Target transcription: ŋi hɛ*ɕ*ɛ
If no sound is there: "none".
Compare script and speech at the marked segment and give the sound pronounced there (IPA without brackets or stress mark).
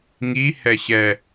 ɕ